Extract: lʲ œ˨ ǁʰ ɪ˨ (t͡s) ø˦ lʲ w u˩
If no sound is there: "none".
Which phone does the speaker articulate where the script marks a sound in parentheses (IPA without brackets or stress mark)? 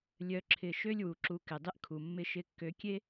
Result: ʃ